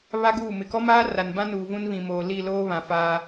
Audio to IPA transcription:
β a˦ ɡ uː˦˨ m ɪ˨ k ɔ˦ m aː˦ r a˨ n b ã˦ n uː˨ v ũ˦ n β ĩ˨ m oː˨ l i˦˨ l oː˦ β ã˨ f aː˦

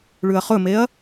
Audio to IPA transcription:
ɭ ʉ ɐ̯ χ ɵ m e ɐ̯

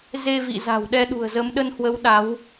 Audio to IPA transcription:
z e˧ v ḭ˧˨ z a̤˨˩ w ɗ ɛ˧ ɗ ṳ˨˩ ə̯ z ə˨˦ m ɗ ə˧ n h w ə˨˦ w ɗ a˨˦ w

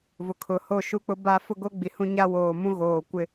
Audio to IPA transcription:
v ʊ˨ kʰ ʊ˨ h o˦˨ ʃ u˦ k͡p ʊ˦ b a˦ f ʊ˦ ɡ o˦ ɡ͡b i˨ h ũ˦ ɲ a˦ w oː˨ m ũ˦ ɣ oː˨ kʷ ɪ˦

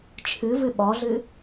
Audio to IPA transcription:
t͡ʃʰ ɨ v ɨ ɓ ɔ ɮ ɨ

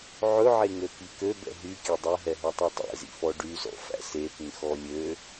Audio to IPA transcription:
ʕ ɵ ʕ e ŋ ø k i k ø b ɛ̰ ɦ y kʲ ø dˤ ɛ ɦ ɛ ɦ œ tˤ œ tˤ ɛ̰ z ḭ f ɔ ɖ y z ɔ̰ f æ̰ s e p ĩ x ɔ lʲ ø

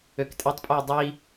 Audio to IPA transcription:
ø k tʼ ɛ tˤ pʼ u j dˤ i

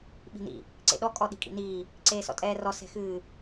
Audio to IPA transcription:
ɓ i̤ n ḭ | ǀ ḛ ɗ ɔ kʼ ɔ ɗ i̤ kʼ ḭ n iː | ǀ eː s ɔ̰ tʼ ɛː r ɔ s ɛ̤ x ɨː

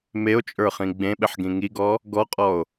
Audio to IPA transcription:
m e o̯ t͡ʃʼ ə˞ χ ĩ ɡ͡b ẽ ɓ ɪ ħ ɡ ĩ ŋ i ɡ ɔ | ɡ ɔ qʼ ɔ o̯

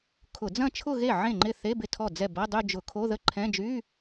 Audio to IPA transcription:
kʰ ʊ˧˩˧ d͡z ɐ̃˥˧ t͡ʃʰ ʊ˥˧ ɣ e˥˩ ʕ ẽ˥˩ ŋ͡ǃ ɪ˥˩ θ e˧˥˧ b ɪ˥˩ tʰ ɔ˥˩ d͡z ɛ˥˩ b ɐ˧˥˧ dˤ y˥˧ d͡ʒ ʊ˧˩˧ kʰ o˧˥˧ ð ə˥˧ ǃʰ ɛ̃˧˥˧ d͡ʒ y˧˥˧

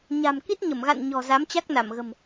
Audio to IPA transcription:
ɲ a̤˨˩ m k i˦˥ t̚ ɲ ə˧˩ m ɣ a̰˧˨ n ɲ ɔ̤˨˩ z a˨˦ m t͡ɕ a˦˥ k̚ n a˧˩ m ɣ ə̤˨˩ m

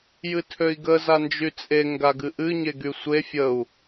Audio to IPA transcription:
j ɨ tʰ ø i̯ ɡ ə z a n d͡ʒ y t͡sʼ e ŋ ɡ a ɡ ɨ ʔ ɨ ɲ e ɡ y sʷ e fʲ ə u̯

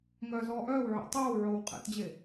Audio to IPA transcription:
ŋ œː z ɔː ʔ œː w ʕ ɛ̰ tˤ oː w ʕ oː w qʼ ɛ̰ t d͡ʑ e

